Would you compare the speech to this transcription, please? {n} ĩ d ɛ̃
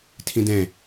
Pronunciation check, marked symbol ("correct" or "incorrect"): incorrect